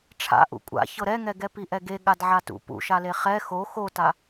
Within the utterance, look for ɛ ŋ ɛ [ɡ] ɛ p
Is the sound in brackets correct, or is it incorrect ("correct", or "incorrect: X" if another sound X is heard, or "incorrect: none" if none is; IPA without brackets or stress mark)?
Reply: correct